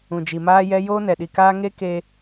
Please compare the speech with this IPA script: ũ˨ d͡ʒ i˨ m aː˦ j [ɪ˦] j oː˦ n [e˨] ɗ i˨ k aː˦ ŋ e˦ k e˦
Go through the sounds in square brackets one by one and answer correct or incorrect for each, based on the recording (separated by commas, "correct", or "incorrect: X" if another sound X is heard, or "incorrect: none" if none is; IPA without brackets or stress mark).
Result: incorrect: ɛ˦, incorrect: ɛ˨